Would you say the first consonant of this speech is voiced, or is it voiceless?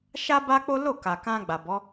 voiceless